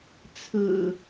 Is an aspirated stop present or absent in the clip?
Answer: present